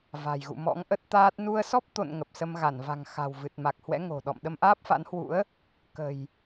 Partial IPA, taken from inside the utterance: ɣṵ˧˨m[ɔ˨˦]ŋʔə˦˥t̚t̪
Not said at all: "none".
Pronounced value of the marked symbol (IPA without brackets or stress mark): ɔ̰˧˥